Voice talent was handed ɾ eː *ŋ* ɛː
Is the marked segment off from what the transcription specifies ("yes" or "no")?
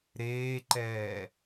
yes